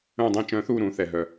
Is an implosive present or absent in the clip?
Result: absent